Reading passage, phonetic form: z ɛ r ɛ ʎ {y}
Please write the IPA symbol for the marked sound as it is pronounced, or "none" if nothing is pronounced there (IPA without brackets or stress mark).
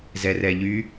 y